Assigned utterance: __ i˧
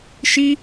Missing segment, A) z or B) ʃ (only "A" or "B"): B